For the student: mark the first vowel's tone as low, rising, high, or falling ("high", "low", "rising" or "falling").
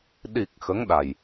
low